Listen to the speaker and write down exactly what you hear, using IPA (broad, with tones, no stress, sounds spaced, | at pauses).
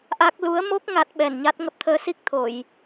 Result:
ʔ a˦˥ k̚ l u˨˦ ə̯ m o˦˥ k̚ ŋ a˦˥ t̚ ɓ ɛ˧˩ n ɲ a˦˥ t̚ ŋ ə˦˥ p̚ t̪ʰ əː˨˦ s i˦˥ k̚ t̪ʰ o˧˩˨ j